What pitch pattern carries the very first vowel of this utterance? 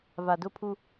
low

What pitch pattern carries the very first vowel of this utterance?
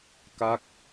falling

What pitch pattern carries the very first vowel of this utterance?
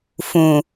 low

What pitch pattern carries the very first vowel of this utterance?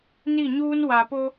falling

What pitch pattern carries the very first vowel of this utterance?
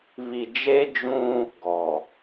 low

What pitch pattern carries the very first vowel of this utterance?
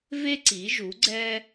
high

